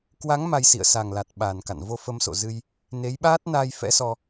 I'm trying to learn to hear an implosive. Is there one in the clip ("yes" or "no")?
yes